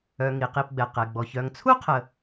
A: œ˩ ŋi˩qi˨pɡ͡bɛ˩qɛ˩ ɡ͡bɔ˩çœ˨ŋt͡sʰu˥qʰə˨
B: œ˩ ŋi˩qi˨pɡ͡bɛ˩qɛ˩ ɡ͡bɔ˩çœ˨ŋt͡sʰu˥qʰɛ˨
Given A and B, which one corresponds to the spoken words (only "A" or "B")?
A